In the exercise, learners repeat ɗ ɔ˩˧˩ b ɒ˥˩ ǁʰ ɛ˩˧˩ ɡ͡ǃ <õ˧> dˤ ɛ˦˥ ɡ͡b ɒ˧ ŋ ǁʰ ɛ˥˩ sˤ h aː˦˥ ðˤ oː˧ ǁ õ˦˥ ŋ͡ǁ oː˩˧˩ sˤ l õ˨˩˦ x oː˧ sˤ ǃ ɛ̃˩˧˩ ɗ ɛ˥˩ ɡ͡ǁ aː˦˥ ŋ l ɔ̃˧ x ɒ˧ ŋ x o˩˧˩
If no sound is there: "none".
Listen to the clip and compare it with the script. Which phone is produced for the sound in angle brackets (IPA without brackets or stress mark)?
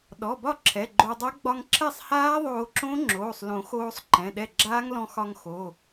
o˧